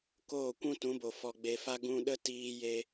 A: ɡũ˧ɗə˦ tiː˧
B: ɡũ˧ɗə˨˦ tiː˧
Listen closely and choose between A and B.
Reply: A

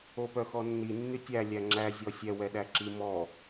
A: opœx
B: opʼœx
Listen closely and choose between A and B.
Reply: A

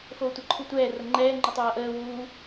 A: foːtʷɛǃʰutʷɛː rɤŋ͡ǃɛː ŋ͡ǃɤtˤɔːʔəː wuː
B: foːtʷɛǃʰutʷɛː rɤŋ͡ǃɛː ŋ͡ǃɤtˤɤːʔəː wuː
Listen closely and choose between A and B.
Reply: B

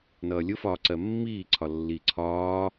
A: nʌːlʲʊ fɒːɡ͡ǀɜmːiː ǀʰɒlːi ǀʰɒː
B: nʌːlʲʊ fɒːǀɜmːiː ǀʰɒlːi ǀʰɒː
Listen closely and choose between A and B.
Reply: B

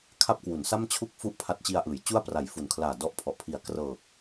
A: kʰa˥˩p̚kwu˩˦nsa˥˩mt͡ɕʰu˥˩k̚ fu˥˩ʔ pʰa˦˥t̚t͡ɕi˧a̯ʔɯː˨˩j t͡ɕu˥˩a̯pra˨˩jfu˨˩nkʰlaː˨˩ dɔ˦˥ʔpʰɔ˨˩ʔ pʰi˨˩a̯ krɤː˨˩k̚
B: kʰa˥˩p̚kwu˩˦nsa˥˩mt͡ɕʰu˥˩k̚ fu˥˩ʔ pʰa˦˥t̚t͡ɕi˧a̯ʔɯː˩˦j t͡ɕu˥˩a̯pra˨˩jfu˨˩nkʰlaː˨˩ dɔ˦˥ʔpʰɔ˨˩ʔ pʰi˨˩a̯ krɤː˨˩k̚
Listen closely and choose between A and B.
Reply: B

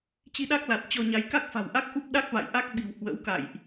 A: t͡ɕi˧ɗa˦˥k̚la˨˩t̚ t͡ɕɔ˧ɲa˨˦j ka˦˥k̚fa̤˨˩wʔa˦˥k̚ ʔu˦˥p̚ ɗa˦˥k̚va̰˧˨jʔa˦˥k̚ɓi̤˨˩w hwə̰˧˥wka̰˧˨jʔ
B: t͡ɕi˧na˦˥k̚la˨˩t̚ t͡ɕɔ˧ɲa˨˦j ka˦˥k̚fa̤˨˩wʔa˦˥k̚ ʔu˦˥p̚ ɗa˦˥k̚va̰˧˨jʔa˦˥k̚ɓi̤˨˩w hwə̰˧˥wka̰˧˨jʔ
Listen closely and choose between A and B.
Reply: A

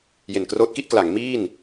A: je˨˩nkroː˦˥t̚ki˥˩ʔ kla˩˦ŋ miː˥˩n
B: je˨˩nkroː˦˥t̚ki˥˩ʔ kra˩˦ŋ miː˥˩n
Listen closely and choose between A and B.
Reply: A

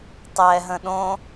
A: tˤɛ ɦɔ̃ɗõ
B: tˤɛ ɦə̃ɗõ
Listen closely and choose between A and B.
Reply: B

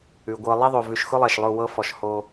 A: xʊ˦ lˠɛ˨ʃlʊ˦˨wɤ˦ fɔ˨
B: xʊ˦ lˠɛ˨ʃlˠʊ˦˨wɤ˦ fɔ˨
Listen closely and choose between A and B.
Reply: B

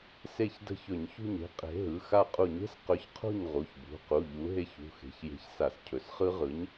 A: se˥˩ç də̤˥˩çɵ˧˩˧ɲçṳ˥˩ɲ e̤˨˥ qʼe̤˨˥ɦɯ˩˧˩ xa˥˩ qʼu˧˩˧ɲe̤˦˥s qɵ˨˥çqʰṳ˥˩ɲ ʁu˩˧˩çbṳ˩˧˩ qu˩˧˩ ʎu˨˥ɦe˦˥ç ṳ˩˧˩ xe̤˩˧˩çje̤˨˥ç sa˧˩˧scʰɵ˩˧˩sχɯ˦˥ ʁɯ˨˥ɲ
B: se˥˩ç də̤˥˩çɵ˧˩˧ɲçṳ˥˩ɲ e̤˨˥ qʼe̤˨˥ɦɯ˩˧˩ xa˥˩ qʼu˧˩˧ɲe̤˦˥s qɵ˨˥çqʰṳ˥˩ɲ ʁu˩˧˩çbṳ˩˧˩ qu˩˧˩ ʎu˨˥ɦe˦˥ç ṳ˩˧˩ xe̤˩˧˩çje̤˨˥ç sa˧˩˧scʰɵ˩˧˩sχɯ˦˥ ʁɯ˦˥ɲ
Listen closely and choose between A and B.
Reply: A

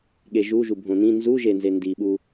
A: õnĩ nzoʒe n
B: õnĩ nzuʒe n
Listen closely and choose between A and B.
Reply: B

